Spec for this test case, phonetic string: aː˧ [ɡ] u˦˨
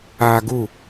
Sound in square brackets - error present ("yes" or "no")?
no